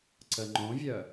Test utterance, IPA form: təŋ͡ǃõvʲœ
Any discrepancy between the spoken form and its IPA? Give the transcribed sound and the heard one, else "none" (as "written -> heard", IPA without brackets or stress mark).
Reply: t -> ǀ